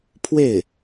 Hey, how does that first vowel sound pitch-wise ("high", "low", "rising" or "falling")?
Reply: falling